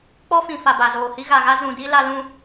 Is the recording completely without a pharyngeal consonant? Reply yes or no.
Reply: yes